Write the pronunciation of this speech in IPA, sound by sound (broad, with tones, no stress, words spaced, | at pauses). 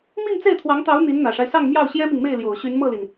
mi˥˧ŋt͡se˥˩ɪ̯t̪ʰwɑ˧˥ŋt̪ɑ˧˥ʊ̯ n̪i˧˥nn̪ä˨˩ʂa˦ɪ̯sɑ˥˧ŋ mjɑ˥˩ʊ̯ɕjɛ˥mi˨ŋme˥˩ɪ̯ ljo˨˩ʊ̯ɕy˧˥nmɤ˥˩li˩n